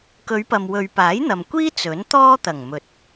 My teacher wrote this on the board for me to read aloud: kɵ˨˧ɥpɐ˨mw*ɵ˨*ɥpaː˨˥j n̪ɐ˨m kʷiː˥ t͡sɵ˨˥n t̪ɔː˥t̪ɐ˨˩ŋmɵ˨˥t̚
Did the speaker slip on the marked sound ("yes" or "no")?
no